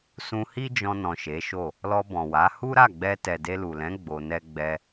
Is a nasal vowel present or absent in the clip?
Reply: present